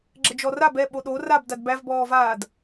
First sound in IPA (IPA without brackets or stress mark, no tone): ɡ͡ǁ